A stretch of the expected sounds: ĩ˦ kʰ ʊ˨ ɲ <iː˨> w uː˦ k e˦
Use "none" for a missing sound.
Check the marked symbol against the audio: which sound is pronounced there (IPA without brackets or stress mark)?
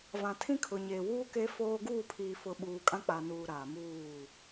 eː˨